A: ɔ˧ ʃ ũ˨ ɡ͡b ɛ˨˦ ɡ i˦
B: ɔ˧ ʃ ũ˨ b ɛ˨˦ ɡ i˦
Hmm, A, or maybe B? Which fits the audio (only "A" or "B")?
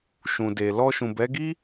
B